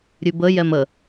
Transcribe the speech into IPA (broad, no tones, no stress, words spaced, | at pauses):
ɾʲʉbə jɛmə